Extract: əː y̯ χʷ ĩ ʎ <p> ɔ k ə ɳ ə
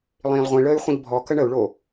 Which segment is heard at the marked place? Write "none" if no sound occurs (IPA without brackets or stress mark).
bʱ